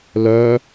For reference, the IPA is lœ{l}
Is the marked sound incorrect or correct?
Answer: incorrect: none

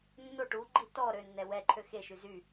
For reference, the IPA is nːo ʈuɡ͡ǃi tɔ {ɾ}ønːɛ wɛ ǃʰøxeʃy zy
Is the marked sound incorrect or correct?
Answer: correct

